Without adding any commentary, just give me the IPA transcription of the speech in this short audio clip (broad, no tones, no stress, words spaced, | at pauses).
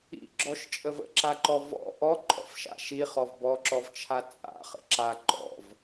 ḭɡ͡ǁɔʃt͡ʃʼəv ə̰ǁaǃɔ vɔ̰ ʔɔǃʼɔ̰fʃa̰ ʃiχɔv bɔǁɔvt͡ʃʰa t͡sʼa̰χə̰ ǁa ǃɔ̰v